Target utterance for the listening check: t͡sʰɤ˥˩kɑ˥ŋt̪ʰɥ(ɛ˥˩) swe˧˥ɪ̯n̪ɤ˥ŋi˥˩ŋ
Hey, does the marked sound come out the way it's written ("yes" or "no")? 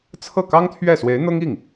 yes